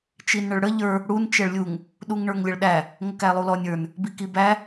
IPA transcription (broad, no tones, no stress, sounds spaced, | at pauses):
t͡ʃ i n ɳ ə ɭ ɽ ə ʎ ə˞ | ɽ u n t͡ʃ ɛ ɭ lʲ u ŋ | ɗ u ŋ ɳ ə˞ ŋ lʲ ə ɭ ɗ æ | ŋ ə k æ lˠ u l ɔ nʲ ə˞ n | b i k i b æ